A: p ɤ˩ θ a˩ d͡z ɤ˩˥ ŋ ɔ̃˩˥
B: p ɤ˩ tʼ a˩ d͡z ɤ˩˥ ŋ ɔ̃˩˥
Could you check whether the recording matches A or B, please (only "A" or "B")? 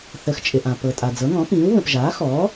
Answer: B